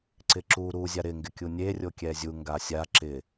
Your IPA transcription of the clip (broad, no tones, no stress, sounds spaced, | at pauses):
ǀ ɪ ǁ u ɾ u zʲ a ɾ ɪ ŋ ɡ ɪ kʲ u nʲ e rʲ o kʲ ɛ zʲ u ŋ ɡ a sʲ a ǁ ɪ